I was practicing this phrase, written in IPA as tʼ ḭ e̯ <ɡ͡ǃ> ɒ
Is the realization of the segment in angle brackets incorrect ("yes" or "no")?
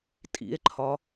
yes